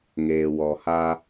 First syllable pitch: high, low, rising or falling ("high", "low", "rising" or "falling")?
low